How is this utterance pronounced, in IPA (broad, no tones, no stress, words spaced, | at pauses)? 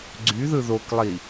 ɡ͡ǀy ðɯðoklˠi